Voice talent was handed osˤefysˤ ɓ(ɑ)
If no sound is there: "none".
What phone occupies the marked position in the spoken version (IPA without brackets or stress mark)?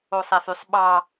ɑ